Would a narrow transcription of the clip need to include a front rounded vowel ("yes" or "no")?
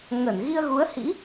no